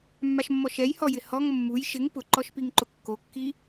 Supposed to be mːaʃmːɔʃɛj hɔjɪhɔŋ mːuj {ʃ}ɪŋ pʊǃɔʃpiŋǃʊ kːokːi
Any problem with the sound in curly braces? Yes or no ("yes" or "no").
no